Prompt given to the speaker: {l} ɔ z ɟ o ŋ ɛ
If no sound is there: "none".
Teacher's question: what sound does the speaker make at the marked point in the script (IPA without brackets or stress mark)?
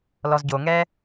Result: l